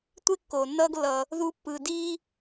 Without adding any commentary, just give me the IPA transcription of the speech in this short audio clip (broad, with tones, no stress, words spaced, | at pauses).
tʷe˥kːoː˩nːʌː˦ɡ lːʌ˨ | ðu˦pːɯ˨ diː˥